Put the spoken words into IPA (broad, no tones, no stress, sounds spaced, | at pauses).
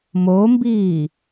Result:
m o m b iː